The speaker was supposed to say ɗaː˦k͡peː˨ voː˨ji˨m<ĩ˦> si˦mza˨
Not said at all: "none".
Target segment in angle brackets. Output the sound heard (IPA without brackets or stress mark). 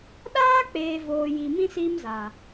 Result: ĩ˦